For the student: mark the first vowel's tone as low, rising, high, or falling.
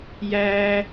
high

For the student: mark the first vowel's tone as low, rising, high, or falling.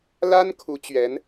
high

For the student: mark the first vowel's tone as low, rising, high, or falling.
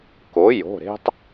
rising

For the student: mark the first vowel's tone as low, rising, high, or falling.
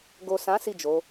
low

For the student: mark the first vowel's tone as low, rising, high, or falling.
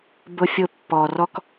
high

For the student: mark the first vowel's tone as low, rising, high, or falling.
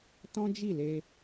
high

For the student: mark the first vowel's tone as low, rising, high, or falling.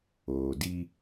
low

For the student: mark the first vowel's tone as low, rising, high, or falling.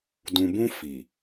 low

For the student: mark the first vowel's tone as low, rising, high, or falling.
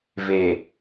low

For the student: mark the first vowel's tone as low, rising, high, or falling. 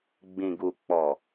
low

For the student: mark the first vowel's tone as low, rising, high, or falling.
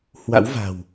rising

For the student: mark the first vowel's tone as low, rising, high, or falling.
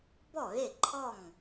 falling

